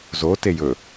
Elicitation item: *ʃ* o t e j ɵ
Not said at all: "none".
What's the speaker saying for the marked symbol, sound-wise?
z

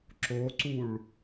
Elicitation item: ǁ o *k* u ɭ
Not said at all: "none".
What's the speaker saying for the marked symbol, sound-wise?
ǀ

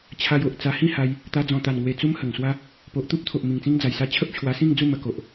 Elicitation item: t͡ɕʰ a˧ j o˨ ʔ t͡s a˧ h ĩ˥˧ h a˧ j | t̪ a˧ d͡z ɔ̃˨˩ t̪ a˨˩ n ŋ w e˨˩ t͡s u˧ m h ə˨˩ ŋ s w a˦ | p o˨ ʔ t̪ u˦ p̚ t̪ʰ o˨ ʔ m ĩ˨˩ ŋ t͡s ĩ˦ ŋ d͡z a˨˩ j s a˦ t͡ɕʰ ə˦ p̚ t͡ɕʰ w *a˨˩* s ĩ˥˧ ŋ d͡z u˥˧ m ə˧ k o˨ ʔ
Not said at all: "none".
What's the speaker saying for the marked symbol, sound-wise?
a˧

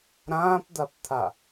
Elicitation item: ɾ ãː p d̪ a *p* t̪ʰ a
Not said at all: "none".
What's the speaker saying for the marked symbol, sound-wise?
p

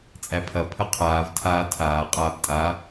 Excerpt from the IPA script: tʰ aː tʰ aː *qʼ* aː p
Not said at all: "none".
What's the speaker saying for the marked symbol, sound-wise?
qʼ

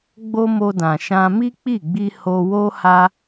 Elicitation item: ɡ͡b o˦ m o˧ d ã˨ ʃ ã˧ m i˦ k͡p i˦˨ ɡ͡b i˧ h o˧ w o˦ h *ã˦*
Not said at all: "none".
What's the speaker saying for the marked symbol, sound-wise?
a˦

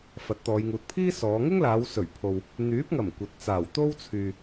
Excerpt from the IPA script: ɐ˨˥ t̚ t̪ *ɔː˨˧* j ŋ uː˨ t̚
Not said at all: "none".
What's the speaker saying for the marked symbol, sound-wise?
ɔː˨˧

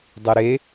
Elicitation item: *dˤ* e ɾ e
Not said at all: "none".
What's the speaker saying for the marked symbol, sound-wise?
dˤ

